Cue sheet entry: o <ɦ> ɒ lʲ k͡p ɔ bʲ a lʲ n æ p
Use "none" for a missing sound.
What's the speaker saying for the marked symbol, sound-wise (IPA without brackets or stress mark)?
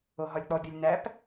ɦ